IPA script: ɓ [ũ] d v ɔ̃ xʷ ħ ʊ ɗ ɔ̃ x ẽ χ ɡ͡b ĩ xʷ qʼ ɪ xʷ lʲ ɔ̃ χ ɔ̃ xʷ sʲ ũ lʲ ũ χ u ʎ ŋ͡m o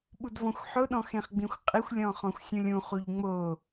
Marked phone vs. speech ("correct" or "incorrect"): incorrect